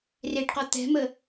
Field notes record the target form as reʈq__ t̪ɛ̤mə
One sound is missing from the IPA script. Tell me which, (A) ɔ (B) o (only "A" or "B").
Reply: A